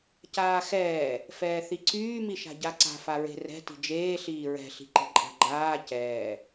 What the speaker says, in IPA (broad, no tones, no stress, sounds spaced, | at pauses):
c aː x ɛː | f ɛː θ i ǀ yː m i ʃ a̤ ɟ a ǀ a̤ f a ɹ e̤ r ɛ̤ t i̤ d͡ʒ eː ɬ iː ɹ ɛ̤ ɬ i̤ ǃ i̤ ǃʼ a̤ ɡ͡ǃ aː c ɛː